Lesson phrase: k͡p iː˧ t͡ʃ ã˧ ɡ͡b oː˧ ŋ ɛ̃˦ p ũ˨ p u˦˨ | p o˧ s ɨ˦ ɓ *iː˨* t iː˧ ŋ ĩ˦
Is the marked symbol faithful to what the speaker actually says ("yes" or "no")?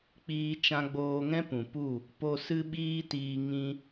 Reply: no